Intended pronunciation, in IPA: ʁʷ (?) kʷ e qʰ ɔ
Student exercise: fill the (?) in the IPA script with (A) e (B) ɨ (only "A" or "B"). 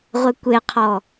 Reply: A